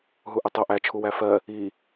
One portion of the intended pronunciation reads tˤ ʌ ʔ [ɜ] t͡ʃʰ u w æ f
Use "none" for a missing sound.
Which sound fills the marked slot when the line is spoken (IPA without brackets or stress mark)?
æ